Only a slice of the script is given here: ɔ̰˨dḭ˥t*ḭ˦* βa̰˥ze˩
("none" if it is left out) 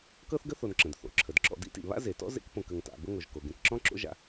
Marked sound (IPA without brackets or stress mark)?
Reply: ḭ˩